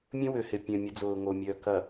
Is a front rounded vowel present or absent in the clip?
present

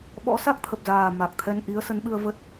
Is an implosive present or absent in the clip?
present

